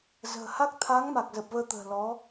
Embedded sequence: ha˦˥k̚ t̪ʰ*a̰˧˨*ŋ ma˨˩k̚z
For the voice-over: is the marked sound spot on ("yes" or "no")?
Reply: no